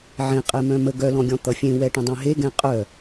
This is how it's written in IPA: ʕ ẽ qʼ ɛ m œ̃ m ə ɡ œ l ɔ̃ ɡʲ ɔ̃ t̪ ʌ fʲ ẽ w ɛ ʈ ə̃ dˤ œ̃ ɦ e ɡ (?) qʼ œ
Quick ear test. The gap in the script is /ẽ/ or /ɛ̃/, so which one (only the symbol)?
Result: ɛ̃